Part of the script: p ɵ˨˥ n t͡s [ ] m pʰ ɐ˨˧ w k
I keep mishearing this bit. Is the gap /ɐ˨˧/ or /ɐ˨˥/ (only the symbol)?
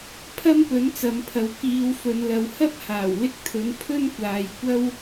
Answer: ɐ˨˧